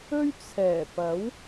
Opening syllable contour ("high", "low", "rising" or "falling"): high